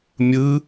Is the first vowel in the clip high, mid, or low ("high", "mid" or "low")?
high